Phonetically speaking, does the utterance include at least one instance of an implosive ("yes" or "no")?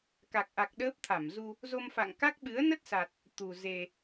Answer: yes